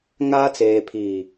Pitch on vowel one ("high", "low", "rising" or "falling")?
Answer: high